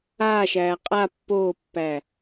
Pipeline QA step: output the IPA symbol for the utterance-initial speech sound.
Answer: aː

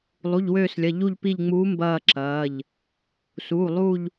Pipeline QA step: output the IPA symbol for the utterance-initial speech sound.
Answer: lˠ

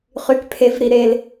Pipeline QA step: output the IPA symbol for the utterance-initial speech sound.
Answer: χ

